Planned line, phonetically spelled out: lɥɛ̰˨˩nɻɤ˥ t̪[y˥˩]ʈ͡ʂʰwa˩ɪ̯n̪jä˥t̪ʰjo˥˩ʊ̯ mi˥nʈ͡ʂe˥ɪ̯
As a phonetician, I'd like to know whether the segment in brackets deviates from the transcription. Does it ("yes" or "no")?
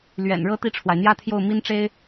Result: yes